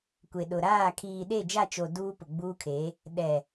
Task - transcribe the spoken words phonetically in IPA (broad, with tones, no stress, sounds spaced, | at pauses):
kʷ e˨ ɗ ʊ˨ ɾ aː˦˨ kʰ iː˨ ɗ e˦˨ d͡ʒ a˦˨ t͡ʃ o˨ d uː˦ p ʊ˨ ɡ͡b uː˦ kʰ e˨˦ | ɗ ɛ˨